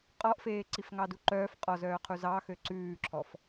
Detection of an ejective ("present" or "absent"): present